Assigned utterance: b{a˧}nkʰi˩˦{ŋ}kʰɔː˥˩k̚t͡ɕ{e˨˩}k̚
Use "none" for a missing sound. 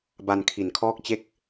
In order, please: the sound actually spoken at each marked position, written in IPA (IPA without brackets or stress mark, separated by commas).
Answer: a˧, n, e˥˩